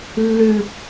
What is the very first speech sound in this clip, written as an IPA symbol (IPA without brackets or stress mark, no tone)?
lː